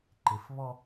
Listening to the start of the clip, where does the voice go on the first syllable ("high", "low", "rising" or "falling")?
low